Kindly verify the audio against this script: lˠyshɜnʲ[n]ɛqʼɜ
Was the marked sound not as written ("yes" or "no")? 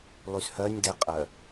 yes